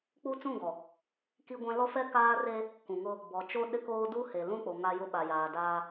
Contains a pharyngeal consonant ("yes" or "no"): no